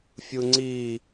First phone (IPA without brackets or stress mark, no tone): fʲ